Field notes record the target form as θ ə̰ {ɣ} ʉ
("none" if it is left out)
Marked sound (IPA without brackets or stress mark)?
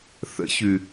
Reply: ç